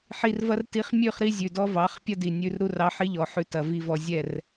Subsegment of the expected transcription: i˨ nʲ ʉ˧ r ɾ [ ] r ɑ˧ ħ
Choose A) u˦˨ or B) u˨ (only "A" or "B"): A